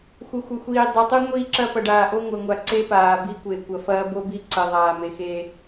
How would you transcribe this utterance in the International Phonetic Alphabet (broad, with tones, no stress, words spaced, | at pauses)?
xʷɘ˨xʷɘ˨xʷiː˨ dˤe˨tˤu˦ ŋʷiː˦ǁɐ˦ pɐ˨ɖaː˨ʔo˦ ŋʷɘ˨ŋʷa˨ ǀe˦paː˨bi˦kʷe˨ kʷɐ˨fɐː˦bo˦ bi˦ǀɘ˨ ðˤaː˨me˨xe˦